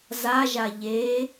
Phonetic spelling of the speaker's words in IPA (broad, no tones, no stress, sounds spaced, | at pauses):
z a ʒ a ʎ e